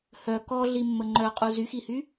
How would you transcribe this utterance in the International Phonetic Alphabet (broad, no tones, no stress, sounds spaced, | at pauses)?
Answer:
h œ k ɔ ɮ i mː ə ŋ͡ǃ œ qʼ u z y x i h y